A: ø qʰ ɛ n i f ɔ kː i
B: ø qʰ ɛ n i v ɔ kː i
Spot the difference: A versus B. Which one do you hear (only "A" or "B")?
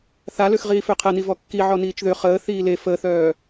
B